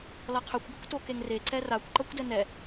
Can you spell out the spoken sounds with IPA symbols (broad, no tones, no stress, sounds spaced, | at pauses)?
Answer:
l ʌ qʰ ø kʷ ɡ ə kʷ t o k e ŋ r e ǀ ɛ r a kʷ ǃ ʌ kʷ d ɛ n ɛ